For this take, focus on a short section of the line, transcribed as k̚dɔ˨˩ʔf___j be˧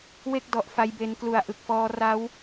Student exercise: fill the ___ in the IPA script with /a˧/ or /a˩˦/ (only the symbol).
a˧